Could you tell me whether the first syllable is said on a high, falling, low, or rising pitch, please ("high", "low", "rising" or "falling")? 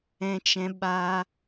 high